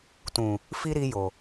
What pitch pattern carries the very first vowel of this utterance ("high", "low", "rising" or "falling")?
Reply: low